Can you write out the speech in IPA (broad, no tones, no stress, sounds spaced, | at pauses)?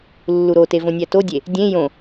lː u ɾ o t e v õ nʲ æ t o dʲ e | dʲ ẽ j õ